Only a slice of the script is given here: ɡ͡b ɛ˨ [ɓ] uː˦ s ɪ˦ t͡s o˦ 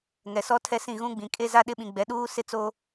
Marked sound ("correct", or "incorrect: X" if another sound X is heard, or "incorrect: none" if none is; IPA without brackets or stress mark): incorrect: ɗ